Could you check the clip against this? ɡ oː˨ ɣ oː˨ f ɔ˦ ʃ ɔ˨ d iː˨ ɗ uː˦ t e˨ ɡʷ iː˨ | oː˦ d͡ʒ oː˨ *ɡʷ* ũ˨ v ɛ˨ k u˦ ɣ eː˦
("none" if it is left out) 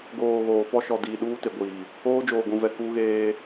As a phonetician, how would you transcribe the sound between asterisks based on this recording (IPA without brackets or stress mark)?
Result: ɡʷ